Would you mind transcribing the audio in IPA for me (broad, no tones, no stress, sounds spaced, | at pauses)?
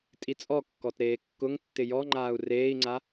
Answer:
tʼ i t͡sʼ ɔ kː ɔ t ɾ eː kː ʊ ŋ tː ɪ j ɔ ŋ͡ǃ aː u̯ r eː i̯ ŋ͡ǀ a